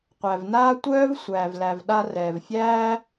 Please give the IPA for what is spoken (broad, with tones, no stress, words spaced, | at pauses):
qʷæ˩vnaː˥ tʷœː˥v sʷæː˩vlæ˩vɗa˧ rɛː˩vfʲæː˥